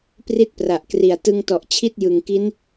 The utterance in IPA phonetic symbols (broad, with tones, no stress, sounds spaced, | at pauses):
p r i˦˥ t̚ p r a˨˩ ʔ k r i˨˩ a̯ t ɯ˧ ŋ t ɔ˨˩ ʔ t͡ɕʰ i˥˩ t̚ j ɯ˨˩ ŋ k i˦˥ n